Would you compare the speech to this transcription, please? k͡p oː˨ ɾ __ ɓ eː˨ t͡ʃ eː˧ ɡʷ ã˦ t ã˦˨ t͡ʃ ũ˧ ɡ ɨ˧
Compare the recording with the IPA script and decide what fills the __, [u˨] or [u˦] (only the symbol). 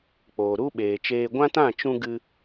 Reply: u˦